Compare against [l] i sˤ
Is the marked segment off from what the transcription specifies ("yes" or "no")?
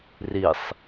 yes